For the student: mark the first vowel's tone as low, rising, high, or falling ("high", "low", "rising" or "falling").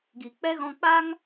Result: low